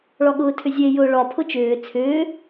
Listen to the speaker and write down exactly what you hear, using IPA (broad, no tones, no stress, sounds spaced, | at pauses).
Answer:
ɭ ɒ ɠ ʊː tʰ ʏ zʲ e j ʊː ɭ ɒ pʰ ʊ t͡ʃ ʏː t͡sʰ ʏː